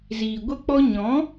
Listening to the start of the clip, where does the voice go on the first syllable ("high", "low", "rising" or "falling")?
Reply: low